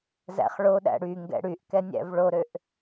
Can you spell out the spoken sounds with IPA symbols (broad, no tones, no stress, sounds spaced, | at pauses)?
z æ̰ χ ɭ o ɗ æ̰ ɽ y ŋ ɡ ɛ̰ ɽ y ʔ k ɛ nʲ æ̰ v ɭ o ɾ ø ʔ